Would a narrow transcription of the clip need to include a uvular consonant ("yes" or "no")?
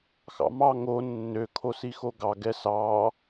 no